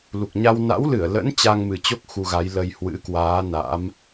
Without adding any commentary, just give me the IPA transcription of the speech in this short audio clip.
l u˨˩ k̚ ɲ a˧ w n a̰˧˥ w l ɨ˧˩ ə̯ l ə̰˧˥ n t͡ɕ a˧ ŋ m ɨ˨˩ t͡ɕ o˦˥ k̚ x u˧ ɣ a˨˦ j l ə˧ j h w ɨ̰˧˥ k w aː˨˦ n a̰˧˥ m

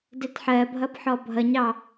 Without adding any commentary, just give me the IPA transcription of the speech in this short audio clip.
d ɛ t ħ ɜ bʱ ʌ b ħ ɔ bʱ ʌ ɲ ɑ

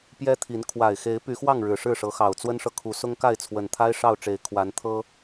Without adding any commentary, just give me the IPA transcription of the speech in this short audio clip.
p j ɛ˦ t̪ʰ i˨˦ n kʰ w a˨˩ ɪ̯ x e˨˦ ɪ̯ p y˨˦ x w ɑ˥˨ ŋ ɻ ɻ̩˨˩ ʂ ɻ̩˥˨ ʂ ɤ˨˦ x ɑ˨˩ ʊ̯ t͡s w ə˦ n ʂ ɤ˨ kʰ u˨˦ s ʊ˦ ŋ k a˥˨ ɪ̯ t͡sʰ w ə˨˩ n t̪ʰ a˦ ɪ̯ ʂ ɑ˥˨ ʊ̯ ʈ͡ʂ e˨˦ ɪ̯ kʰ w a˨˦ n t̪ʰ ɤ˦

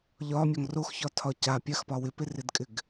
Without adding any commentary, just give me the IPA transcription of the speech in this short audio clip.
ʎ ɒ mʲ ɒ ŋ r o x ç ɒ tʰ ɒ c a pʲ a x p ɒ w ɪ p ɪ r ɪ d kʼ ɪ ɡ

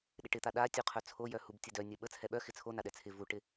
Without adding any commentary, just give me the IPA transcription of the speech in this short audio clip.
ɗ ɪ ʈ ɪ t̪ a ɗ a tʲ u qʰ œ t͡sʰ o j œ h u b tʲ ə d œ nʲ œ ɓ ə t͡sʰ ɛ ɓ œ x ɪ t͡sʰ o n a ɗ ɛ t͡sʰ ɪ v u ʈ ɪ

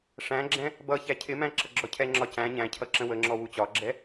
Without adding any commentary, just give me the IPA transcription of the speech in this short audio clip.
ʂ æ̃ ɡ͡ǁ ɛ̃ | b ʌ ç æ cʰ ɪ m æ̃ ǁ ʌ ɡ͡ǁ ɔ cʰ ɛ ŋ͡ǁ ɒ c æ̃ ɲ æ̃ cʰ ʌ ǁ ə̃ w ə ŋ͡ǁ ɔ w u t͡ɕ ɒ ɡ͡ǁ ɛ

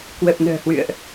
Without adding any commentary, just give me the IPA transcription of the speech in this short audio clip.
k w ə˨˩ p̚ n ə̤ː˨˩ h w ɨ̰˧˨ ə̯ ʔ

